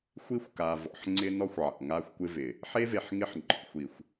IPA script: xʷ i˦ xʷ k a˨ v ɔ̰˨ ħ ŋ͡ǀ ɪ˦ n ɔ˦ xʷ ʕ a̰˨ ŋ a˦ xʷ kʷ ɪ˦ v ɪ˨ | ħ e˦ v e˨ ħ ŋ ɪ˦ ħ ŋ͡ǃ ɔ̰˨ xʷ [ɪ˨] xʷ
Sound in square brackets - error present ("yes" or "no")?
yes